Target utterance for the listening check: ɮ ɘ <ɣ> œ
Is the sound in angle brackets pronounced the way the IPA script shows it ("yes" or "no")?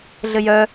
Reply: no